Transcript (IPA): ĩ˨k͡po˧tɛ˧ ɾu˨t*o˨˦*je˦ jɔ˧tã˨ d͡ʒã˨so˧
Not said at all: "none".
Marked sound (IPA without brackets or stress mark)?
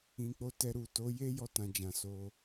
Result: o˨˦